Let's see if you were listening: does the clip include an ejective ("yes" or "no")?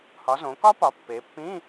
no